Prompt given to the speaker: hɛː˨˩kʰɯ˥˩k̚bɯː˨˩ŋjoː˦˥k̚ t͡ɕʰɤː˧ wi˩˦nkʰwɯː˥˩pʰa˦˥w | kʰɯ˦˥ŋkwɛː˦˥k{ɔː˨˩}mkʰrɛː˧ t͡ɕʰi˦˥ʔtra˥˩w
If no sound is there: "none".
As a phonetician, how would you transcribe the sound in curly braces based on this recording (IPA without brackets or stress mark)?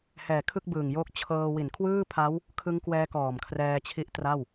ɔː˨˩